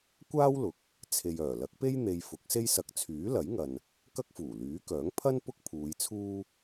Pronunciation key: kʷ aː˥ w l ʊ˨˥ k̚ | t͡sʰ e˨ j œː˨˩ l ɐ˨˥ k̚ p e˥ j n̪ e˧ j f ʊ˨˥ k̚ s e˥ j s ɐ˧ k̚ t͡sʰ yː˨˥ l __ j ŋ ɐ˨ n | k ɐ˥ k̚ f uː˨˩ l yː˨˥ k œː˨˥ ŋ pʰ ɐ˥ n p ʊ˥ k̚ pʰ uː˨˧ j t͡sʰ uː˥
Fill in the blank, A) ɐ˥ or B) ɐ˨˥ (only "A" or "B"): B